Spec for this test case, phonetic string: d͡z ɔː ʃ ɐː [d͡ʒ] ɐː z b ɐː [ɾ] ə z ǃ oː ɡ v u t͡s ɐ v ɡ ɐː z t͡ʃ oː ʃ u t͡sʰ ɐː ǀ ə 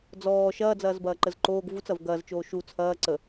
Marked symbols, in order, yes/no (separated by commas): no, no